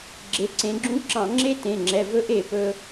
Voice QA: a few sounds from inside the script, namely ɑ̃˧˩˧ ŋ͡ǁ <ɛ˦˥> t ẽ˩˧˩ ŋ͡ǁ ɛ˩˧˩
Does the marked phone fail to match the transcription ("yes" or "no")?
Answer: yes